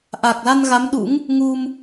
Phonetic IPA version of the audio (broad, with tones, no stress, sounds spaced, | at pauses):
ʔ a˨˩ k̚ l a˧ n ɣ a˨˦ m ɗ ṵ˧˥ ŋ | ŋ u˧ m